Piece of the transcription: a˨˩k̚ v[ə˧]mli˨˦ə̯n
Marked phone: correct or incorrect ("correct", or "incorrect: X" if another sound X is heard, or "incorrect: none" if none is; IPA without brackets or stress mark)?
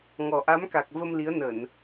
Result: correct